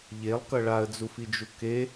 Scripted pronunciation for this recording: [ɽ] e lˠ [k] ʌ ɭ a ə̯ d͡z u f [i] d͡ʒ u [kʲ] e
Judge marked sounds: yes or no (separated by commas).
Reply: no, yes, yes, no